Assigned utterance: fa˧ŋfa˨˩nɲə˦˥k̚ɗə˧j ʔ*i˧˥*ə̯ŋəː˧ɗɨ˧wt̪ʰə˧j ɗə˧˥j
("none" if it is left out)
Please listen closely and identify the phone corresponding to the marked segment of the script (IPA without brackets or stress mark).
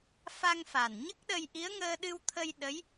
i˧˥